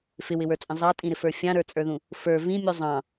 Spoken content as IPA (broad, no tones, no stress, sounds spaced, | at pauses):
f ɪ w ɪ w ə˞ t͡sʼ ə̃ zˤ ɑ tʼ ĩ ɾ ɪ f ə˞ fʲ ɑ̃ ɾ ə˞ t͡sʼ ə˞ ð ũ | f ə˞ v ĩ mʲ u zˤ ɑ̃